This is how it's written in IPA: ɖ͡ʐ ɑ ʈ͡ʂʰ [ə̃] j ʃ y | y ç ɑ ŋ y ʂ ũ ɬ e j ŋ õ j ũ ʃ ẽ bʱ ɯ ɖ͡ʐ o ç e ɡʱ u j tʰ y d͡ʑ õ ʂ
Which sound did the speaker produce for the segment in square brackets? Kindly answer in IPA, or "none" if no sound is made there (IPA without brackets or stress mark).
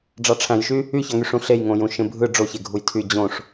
æ̃